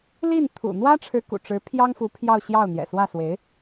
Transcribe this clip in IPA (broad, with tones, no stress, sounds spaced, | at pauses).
l i˥˩ n t̪ʰ ṵ˨˩ n̪ w ä˥ ʈ͡ʂʰ ɻ̩˧˥ k ṵ˨˩ ʈ͡ʂ ɻ̩˧˥ pʰ j ɑ˥ ŋ f u˧˥ pʰ j ɑ˥˧ ʊ̯ ɕ j ɑ˥˩ ʊ̯ n̪ j ɛ̰˨˩ s w ä˥˩ s w e˧˥ ɪ̯